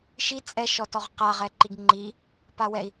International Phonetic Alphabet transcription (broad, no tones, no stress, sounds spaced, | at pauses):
ʃ i t͡sʼ ɛ ʃ ɔ t ɔ ʁ q a ʁ ɛ ǃ i ɡ ŋ͡ǃ i | p a w ɛ i̯